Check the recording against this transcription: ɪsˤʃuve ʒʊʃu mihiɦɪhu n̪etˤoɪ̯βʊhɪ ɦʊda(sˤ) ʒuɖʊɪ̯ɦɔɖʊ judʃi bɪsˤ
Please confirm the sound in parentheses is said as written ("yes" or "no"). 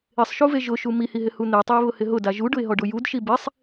no